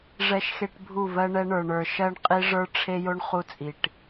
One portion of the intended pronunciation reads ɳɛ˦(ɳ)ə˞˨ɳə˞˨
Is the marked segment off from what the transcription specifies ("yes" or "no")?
no